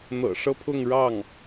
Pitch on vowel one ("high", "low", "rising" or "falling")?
low